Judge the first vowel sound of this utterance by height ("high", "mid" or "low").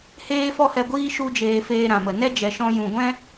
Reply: mid